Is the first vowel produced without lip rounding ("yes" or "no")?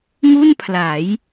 no